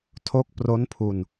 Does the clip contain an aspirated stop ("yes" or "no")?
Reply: yes